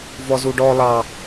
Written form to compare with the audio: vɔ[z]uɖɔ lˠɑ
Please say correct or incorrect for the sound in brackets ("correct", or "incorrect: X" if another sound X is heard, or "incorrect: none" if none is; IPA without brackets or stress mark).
correct